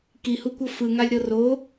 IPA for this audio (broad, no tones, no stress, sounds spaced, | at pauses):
k i h u kʷ ɤ f ɯ ŋ a lʲ ɾ ɤ r o